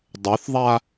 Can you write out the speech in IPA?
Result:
dˤ œ θ ðˤ a

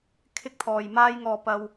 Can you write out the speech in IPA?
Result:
kʰ ɪ˥ k̚ t̪ʰ ɔː˨ j m aː˥ j ŋ ɔː˧ p ɐ˧ w

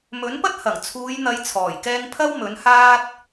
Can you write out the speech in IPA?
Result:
m ɵ˨˥ n p ɐ˥ t̚ h ɐ˨˩ ŋ t͡sʰ uː˨˧ j n̪ ɐ˨˧ j t͡sʰ ɔː˨˩ j k ɛː˧ ŋ pʰ ɐ˥ w m ɵ˨˥ n h aː˥ t̚

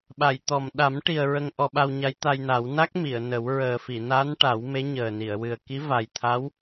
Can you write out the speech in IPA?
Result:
ɓ a˨˩˨ j t̪ ɔ˨˩ m ɗ a˨˩˦ m ʈ i˨˩ ə̯ ɹ ə˧ ŋ ʔ ɔ˧ ɓ a˧ w ɲ a˧˥ j t̪ a˧ j n a˨˩˦ w n a˦˥ k̚ m i˨˩˨ ə̯ n ə˨˩˦ w ɹ əː˨˩ f i˨˩˨ n a˧˥ n ʈ a˨˩˦ w m e˧˥ ɲ əː˨˩ n i˨˩˨ ə̯ w ɨ˨˩ ə̯ k i˧˥ v a˨˩ j t̪ʰ a˧˥ w

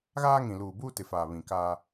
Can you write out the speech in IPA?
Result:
ɣ aː˦ ŋ ĩ˨ l uː˨ b uː˦ t ɪ˨ f aː˨ β ĩ˨ k aː˦

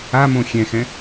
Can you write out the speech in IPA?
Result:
a m õ xʲ ɛ̃ x ɛ̃

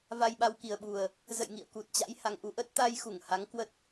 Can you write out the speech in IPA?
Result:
v a˧ j ɓ a˧ w k i˨˩ ə̯ ɓ u˨˩ ə̯ | z ə̰˧˨ j ŋ ḭ˧˨ ə̯ k u˨˩ t̚ t͡ɕ a̰˧˥ j h a˨˩ ŋ ʔ u˧ ʔ ə˦˥ t̚ t̪ a˧ j x u˧˩ ŋ h a˨˦ ŋ k w ə˦˥ t̚

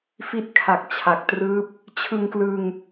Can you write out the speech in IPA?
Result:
f i˦˥ t̚ kʰ a˨˩ k̚ t͡ɕʰ a˨˩ k̚ t r ɯː˦˥ p̚ | t͡ɕʰ ɯ˧ ŋ k l ɯː˧ ŋ

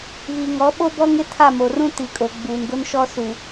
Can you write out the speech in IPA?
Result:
v i˨ ŋ ɔ˨˦ ɓ o˦ b ɔ˦ ŋ ɪ˦ tʰ a˦˨ m o˨ r ũ˦ t i˨ kʼ o˨ ɡ͡b uː˨ n ɡ ʊ˦ n ʃ ɔ˦ s u˨

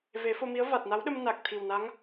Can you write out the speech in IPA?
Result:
v e˨˩˦ f o˧ m i˧˥ ə̯ v a˨˩ t̚ n a˧˥ w ɗ ə˧ m n a˨˩ k̚ t̪ʰ i˨˩ w n a˧˥ ŋ

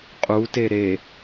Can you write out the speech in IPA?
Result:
qʼ u t e ɾ e

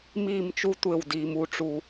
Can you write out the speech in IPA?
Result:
m iː˦˨ m t͡ʃ u˦ tʷ e˦˨ w d iː˨ m u˦ ʈ͡ʂ u˦

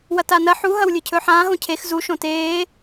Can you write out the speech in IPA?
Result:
w ɐ t a n ɐ ħ u ɦ ɐ w lʲ ɨ cʰ ɵː ħ ãː ɦ õ cʰ e x z u ʃ õ t eː

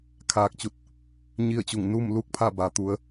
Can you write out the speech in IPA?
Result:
kʰ aː˧ k̚ t͡ɕ u˧˩ t̚ | ɲ i˥˨ ə̯ t͡ɕ u˧˩ ŋ n uː˥˨ m l u˥˨ k̚ pʰ a˥˨ b a˩ t̪ u˩˧ ə̯

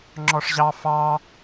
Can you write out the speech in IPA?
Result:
ŋ͡ǁ ɔ ʂ ʑ ɑ f ɑ

